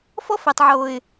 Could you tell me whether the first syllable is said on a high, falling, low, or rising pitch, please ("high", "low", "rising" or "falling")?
high